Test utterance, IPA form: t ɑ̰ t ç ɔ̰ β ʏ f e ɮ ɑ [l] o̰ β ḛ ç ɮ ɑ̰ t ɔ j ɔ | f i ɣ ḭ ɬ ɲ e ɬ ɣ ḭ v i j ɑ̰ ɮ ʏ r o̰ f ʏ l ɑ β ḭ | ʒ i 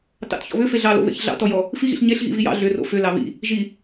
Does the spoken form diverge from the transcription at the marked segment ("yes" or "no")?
no